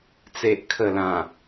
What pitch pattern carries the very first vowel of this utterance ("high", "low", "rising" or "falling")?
low